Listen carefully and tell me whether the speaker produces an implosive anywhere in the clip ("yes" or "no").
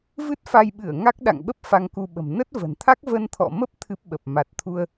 yes